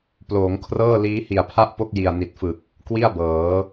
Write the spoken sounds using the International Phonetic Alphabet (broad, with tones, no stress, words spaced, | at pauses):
ploː˩˦ŋkʰrɤː˥˩ liː˦˥hi˨˩a̯pʰa˥˩ʔpo˥˩k̚ ji˨˩a̯ni˨˩t̚fɯ˨˩k̚ | kwi˥˩a̯bɤː˩˦